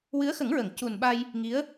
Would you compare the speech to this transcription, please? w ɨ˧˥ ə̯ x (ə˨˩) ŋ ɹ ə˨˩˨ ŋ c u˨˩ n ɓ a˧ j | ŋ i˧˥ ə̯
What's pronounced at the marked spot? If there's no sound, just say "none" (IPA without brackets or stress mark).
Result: ə˨˩˦